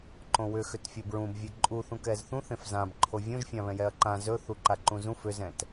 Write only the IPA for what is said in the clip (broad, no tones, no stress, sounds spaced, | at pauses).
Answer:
ǃ õ w ʏ x ʏ t fʲ o b ɹ ũ b vʲ e ǃʼ u θ ũ k ɛ z θ ũ θ ẽ f z ã b ǃʰ o vʲ õ ʒ fʲ ã β ɛ̃ j ɛ ɐ̯ ǃ ã z ɵ θ u ǃ a ǃ ũ z ũ f ʏ z ɛ̃ t